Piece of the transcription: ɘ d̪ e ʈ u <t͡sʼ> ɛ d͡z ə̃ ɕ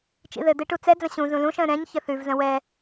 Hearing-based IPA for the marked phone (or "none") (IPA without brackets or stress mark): t͡s